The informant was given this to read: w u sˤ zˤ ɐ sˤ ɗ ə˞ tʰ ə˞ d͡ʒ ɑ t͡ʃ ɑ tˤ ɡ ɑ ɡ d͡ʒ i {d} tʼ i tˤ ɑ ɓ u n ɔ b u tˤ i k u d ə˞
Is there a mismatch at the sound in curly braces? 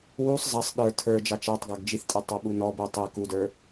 yes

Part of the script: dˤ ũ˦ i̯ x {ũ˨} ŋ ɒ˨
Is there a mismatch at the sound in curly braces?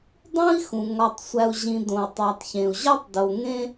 no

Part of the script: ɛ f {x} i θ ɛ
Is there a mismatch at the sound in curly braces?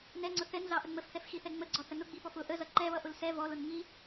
no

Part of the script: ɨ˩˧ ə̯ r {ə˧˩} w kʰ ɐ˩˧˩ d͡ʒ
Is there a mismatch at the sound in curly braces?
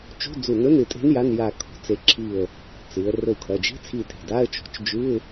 yes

